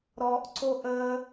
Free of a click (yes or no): no